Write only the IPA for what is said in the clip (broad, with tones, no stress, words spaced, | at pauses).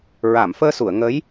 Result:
ɹa˨˩˨mfəː˧su˨˩˨ə̯ ŋə˧˥j